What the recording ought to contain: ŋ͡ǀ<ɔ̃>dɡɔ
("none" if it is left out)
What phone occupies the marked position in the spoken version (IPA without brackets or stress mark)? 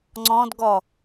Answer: ɔ̃